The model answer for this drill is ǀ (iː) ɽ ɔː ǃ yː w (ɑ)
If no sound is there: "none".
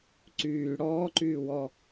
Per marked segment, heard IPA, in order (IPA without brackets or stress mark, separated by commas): yː, ɔ